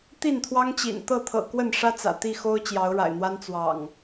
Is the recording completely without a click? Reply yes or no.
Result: yes